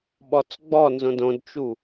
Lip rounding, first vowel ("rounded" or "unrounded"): rounded